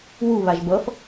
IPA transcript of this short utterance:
wu βaʒbʌf

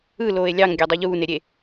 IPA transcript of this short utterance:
ɯ loːe̯lʲɑŋ ɡʲædˤoʎuː neɾʲe

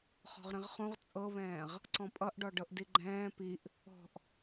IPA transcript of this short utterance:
χɔ̤ʁɾĩʁχũʁ t͡sʼɤβɛ̃ːʁ | ǀɔ̃pʼʌʔɖɔ ɖɤʔdiɡ͡ǃɛ̃ː piʔ | ɔ̤ʔ

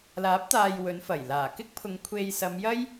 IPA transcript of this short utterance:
laː˨˥p̚t̪aː˨j wɵ˨˧nfɐ˨˩j laː˨˩kɪ˥k̚pʰʊ˨˧ŋ kʷʰe˧j sɐ˨˧mjɐ˥j

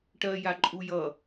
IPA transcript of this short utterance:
ʈɜja ǃʼujʌ

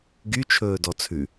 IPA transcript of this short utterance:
ɡyt͡ʃʰɵː dɔt͡sʰʉ

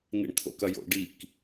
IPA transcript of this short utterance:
nḭɳt̪ʰo̰kɐjo̰ ɖik

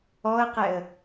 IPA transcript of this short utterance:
ɔə̯qɛə̯

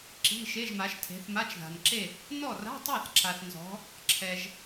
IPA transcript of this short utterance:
ǁi̤˧˥˧ʃe˧˥˧ʒma˨˦ʃtʰe̤˨˦θ ma˧˥˧t͡ʃða̤˨nǁe˥˨ | nɔ˥˨ra̤˧˥˧tˤa˥˨θǁa˨θ nzɔ̤˨˦ | ǁʰɛ˨ʒ

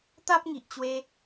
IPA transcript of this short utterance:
t̪a˦p̚ŋi˨ʔt͡ɕwe˧

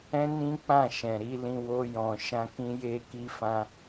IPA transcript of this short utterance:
ɛ̃˦nĩ˦k͡pã˦˨ ʃɛ̃˨ɾi˨˦lĩ˧ wo˧jɔ̃˨ʃã˧ kĩ˦ je˦ki˦fã˦

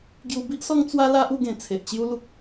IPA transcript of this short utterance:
ɡju˧bi˦ʔsɔ˦ŋ t͡swa˦la˦ʔu˥˧ɡẽ˨˩ t͡sʰe˨ʔt͡ɕju˦lu˦k̚

